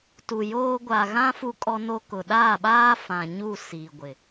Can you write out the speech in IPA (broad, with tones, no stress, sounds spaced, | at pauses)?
t u˨ j oː˦ ɡʷ a˨ ɣ ã˦ f u˦ kʼ ɔ˦ n o˦ k ʊ˨ ɗ aː˦˨ ɓ aː˦ f ã˨ ɲ u˦˨ s i˨ ɡʷ ɪ˨